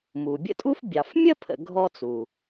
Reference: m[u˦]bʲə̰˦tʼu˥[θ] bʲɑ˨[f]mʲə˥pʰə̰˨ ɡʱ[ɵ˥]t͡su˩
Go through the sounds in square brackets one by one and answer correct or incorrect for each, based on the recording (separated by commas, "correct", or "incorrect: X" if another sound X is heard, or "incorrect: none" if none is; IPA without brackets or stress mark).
incorrect: u˩, incorrect: f, correct, incorrect: ɔ˥